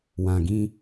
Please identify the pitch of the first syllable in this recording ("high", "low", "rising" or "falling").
low